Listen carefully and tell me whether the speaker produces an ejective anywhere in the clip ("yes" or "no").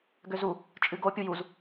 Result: yes